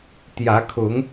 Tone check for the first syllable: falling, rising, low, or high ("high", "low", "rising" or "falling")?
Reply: rising